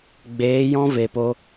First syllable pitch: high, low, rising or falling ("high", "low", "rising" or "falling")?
rising